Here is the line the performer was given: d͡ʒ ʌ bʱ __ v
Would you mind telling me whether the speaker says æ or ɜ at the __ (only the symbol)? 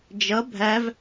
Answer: æ